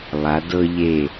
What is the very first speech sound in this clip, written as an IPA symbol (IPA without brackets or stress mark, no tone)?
lˠ